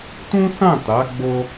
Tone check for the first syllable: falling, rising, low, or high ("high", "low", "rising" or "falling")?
high